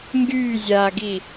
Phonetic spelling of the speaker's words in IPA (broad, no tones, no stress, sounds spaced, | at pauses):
ŋ ɡ yː zʲ aː ɡ i